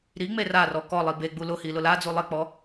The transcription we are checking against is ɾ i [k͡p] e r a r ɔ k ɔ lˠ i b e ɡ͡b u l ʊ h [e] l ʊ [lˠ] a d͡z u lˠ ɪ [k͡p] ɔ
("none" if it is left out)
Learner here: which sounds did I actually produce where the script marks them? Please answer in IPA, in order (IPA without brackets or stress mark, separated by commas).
ŋ͡m, i, l, k͡p